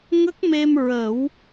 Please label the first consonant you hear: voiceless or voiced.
voiced